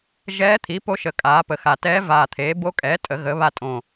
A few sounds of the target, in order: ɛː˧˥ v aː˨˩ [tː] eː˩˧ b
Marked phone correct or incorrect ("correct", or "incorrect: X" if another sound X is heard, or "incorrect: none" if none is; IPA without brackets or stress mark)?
incorrect: t̪ʰ